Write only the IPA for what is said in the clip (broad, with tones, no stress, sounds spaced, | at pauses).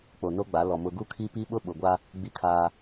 k͡p o˨ n o˦ ɡ͡b a˨˦ l ɔ˨ m ʊ˨ ɡ u˦ kʰ i˦ p i˦ ɓ ʊ˦ ɓ ʊ˨ ɡʷ a˦ | ɡ͡b i˦ kʰ aː˦